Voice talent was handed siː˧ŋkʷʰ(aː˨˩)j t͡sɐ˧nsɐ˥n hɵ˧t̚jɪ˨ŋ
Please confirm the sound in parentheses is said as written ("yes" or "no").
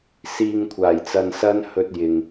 yes